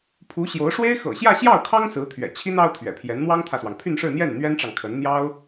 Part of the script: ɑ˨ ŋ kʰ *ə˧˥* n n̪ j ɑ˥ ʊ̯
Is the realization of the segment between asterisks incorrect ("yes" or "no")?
no